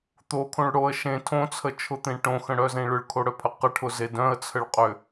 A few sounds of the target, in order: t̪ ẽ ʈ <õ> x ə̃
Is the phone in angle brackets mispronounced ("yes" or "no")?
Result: no